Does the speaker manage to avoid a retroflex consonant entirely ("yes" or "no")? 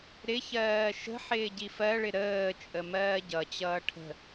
no